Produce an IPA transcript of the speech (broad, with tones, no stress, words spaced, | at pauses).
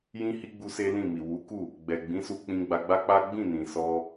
jĩ˧ hi˦ ɡ͡bu˦se˦lĩ˦˨mi˨ wu˨˦ku˦˨ | ɡ͡bɛ˨ɡ͡bĩ˨˦su˧ k͡pĩ˧ ɡ͡ba˧ɡ͡ba˦k͡pa˦ ɡ͡bĩ˦˨nĩ˨ sɔ˧